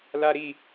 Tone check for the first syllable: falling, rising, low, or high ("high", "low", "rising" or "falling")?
high